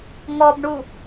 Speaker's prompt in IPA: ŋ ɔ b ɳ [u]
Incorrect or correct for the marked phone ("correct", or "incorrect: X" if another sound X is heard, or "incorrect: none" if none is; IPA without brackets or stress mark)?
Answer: correct